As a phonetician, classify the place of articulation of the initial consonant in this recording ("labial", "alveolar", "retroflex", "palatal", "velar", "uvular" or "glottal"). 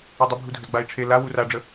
alveolar